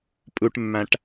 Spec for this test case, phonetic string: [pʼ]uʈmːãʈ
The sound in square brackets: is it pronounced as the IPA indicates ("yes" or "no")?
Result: yes